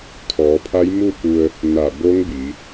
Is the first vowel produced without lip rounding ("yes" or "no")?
no